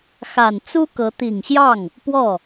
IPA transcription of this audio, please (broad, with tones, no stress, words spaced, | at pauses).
xa˨˩nt͡su˥kɤ˧˥ t̪i˨˩ŋɕjɑ˥˩ŋ | pwɔ˥˩